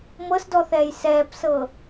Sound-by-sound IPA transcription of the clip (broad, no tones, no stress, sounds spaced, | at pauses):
m ɤ s d ɔ θ ɛː j s ɛː p s ɤ